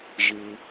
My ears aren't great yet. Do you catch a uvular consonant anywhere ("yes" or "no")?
no